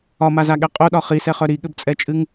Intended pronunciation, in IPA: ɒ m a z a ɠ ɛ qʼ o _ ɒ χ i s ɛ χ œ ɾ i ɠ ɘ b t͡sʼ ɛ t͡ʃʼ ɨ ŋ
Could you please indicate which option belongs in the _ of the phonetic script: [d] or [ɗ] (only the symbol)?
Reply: ɗ